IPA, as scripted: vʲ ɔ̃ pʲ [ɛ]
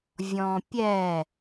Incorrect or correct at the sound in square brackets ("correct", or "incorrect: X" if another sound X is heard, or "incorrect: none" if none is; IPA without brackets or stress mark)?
correct